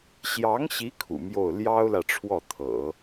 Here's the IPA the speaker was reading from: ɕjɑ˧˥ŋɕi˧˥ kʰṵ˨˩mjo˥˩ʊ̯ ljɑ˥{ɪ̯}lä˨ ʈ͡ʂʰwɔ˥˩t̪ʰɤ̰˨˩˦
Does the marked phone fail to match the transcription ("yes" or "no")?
yes